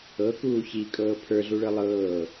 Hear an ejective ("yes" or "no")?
yes